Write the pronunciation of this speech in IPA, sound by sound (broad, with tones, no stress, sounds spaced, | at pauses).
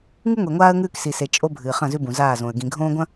ŋ ɨ˦ ŋʷ e˨ ŋʷ aː˦ ə̯ ŋ ʉː˦ k s i˨ s e˨ t͡ʃʼ o˦ bʱ ɨː˨ χ ɐ̃˦˨ z ʉ˦ b ũ˨ z aː˦˨ z õ˨ ə̯ ɡ ĩ˨ ɡʱ õː˦ ɡʷ ɐ̃˦